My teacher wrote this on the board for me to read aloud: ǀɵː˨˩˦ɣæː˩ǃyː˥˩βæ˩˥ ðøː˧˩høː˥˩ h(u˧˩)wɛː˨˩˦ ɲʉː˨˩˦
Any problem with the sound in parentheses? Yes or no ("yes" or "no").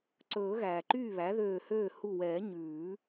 no